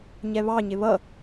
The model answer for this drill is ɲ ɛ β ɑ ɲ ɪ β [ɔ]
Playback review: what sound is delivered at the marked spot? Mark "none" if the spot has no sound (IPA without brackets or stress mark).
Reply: ʌ